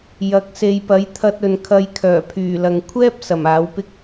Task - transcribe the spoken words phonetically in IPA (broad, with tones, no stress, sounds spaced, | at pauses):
j ɐ˨˥ k̚ s e˨ j p ɐ˨˥ j t̪ʰ ɐ˧ t̚ ɵ˨ n kʰ ɐ˧ j kʰ œː˨˩ pʰ yː˨˩ l ɐ˨ ŋ kʷʰ ɛː˥ p̚ s ɐ˨˩ m aː˨˥ w p ɪ˥ k̚